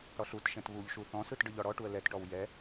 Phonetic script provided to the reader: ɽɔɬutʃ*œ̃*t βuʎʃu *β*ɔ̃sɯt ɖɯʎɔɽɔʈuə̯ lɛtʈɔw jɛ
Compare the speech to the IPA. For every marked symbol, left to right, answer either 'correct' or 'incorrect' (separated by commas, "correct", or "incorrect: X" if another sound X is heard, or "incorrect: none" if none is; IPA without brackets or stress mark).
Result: incorrect: ɛ̃, incorrect: θ